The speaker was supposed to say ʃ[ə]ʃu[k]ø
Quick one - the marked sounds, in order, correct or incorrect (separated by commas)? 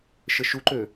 correct, incorrect